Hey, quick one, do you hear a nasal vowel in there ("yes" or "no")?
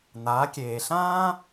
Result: yes